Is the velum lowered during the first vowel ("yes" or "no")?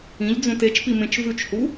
yes